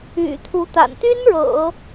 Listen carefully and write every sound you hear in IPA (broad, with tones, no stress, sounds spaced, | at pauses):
y̰˨˩ t̪ʰ u˧˥ t̪ a̰˨˩ n t̪ y˥ n ɻ ɤ̰˨˩˦